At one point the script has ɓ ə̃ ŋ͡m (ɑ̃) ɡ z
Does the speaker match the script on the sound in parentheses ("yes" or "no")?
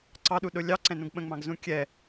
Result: yes